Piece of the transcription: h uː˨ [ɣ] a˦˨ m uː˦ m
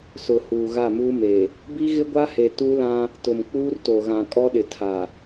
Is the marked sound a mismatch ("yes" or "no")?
no